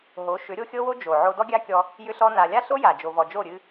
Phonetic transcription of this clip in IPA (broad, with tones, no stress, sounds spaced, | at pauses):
ɦ o˨˦ ʃ ʏ˨˦ ɾʲ o˦ xʲ ɤ˦ w o˦ d͡ʒ o˨ ʕ o˧ d ɔ˦ ɡʲ a˦ kʲ ɔ˧ | j ʏ˦ ɬ ɔ˦ n a˧ lʲ a˦ ɬ o˦ j a˨ d͡ʒ o˨ v ɔ˨ d͡ʒ o˦˨ ɾʲ ɨ˧